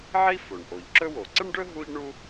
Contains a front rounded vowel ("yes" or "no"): no